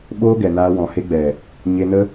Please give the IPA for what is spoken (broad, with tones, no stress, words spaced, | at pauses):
ɓoː˦ɡɛ˨naː˧ wɔ̃˨he˧ɡ͡bɛ˨ | ɲe˧nə˦